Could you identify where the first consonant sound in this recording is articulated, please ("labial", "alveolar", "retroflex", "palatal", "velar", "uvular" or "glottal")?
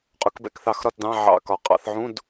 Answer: uvular